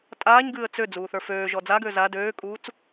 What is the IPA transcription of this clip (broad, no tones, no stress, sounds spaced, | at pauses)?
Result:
tʼ aː ɲ ɡ ɨː ə̯ t͡s ø d͡z uː θ ə˞ f øː ʒ ɔ d͡z a ɡ øː z a d øː kʼ uː t͡s